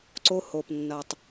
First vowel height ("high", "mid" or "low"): mid